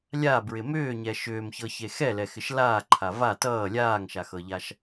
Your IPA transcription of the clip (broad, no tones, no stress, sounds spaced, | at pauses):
lʲ a b ɹ ɪ m ʏː ɲ ɛ ʃ ʏː m ç ɤ ç e x ɛ l ɛ x ɪ ʃ l aː ǃʰ a v a t ʌː lʲ aː ŋ ʃ a x ɤ ʎ a ʃ